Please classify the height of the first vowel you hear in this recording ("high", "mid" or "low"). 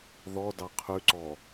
mid